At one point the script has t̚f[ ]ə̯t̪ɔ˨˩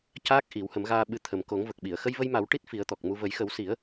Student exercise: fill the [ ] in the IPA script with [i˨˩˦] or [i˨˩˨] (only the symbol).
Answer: i˨˩˦